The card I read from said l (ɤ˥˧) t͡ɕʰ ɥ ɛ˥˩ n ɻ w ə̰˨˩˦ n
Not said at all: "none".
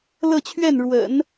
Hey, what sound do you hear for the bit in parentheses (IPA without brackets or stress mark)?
ɤ˥˧